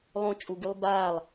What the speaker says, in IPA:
lˠ õ t͡ʃʼ u ɡ y lˠ b a lˠ

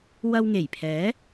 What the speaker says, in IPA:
w ɐ˧ w ŋ e˨˩ j pʰ ɛː˨˥

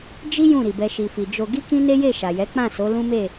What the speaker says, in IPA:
d͡ʒ i˦ j ũ˦˨ ɾ i˨ b ɛ˧ ʃ i˨ f i˨ d͡ʒ o˧ ɡ i˦ k ĩ˦ n e˦ j e˦˨ ʃ a˨ j ɛ˨˦ k͡p ã˦˨ s o˨˦ l ũ˦ m e˦˨

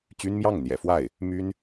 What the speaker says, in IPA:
t͡ɕ y˥ n m j ɑ˥˩ ŋ n̪ j ɛ̰˨˩ f w a˥˩ ɪ̯ | m y˥ n

